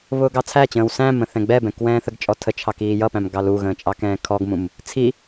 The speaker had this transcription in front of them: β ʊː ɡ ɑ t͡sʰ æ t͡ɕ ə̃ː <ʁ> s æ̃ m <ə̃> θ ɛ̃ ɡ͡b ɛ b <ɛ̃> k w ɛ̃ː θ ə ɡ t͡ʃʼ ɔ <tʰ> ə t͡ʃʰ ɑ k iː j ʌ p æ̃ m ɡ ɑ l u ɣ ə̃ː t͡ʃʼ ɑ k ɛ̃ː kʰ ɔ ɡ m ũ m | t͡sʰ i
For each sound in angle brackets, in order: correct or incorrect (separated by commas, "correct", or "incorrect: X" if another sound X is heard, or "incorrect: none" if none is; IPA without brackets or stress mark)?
incorrect: w, correct, correct, correct